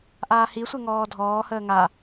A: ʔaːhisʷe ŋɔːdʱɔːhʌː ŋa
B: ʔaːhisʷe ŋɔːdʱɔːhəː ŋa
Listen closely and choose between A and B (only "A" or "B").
B